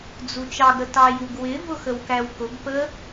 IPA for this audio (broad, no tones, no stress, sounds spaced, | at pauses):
d͡z u t͡ʃ ɑ ɡ ɾ ə t ɑ j u ɡ w ɪ v ʊ x ə w k æ w k ʊ ɡ p ə